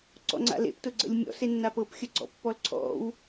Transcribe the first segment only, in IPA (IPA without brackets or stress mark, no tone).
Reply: ǀ